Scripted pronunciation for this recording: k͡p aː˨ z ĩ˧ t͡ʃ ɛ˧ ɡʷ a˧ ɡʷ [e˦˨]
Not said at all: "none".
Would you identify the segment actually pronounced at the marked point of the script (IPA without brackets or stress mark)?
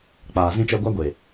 e˨